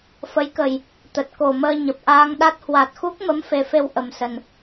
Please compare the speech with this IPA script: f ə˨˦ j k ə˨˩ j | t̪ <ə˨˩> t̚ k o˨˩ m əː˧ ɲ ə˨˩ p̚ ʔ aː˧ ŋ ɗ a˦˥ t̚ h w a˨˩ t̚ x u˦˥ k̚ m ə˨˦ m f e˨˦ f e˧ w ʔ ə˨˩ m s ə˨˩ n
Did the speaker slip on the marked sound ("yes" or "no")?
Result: no